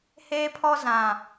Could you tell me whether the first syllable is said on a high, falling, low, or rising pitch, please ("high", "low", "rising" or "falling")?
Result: high